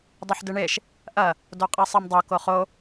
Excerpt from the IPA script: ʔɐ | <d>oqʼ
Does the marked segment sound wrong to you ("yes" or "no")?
no